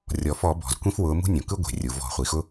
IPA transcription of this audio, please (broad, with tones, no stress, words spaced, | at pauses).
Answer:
rʲɔ˩fɔ˧˩˧ bɔ̤˩z kʷĩ˦fwʊː˩˧ mṳ˦nʲõ˩kɯ˦ ɡʷe̤˩rʲu˩vɔ̤˧˩˧ χʷi˩xʊ˦